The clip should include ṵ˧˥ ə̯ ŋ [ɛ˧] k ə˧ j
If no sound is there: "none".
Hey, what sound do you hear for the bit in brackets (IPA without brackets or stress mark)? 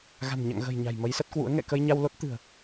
ɛ̰˧˨